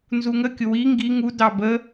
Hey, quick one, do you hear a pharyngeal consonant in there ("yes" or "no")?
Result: no